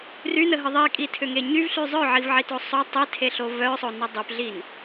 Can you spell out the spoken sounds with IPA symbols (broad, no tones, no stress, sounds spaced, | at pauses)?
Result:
r y n ə ɦ ə ðˤ i kʼ i tʰ ʏ ŋ e ɲ y v ɬ y zˤ œ ʕ i v ʕ i t o sˤ o tˤ i tʰ e ɬ o v œ sˤ o n ə dˤ y p ɮ i n